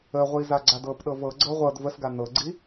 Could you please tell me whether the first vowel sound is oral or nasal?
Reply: oral